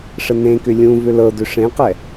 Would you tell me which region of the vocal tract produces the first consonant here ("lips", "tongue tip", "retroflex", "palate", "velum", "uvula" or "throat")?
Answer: retroflex